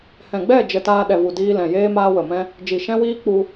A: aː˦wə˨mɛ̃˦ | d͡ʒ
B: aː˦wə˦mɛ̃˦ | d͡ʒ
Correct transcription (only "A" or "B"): A